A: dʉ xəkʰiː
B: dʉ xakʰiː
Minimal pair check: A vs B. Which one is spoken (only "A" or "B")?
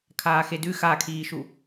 B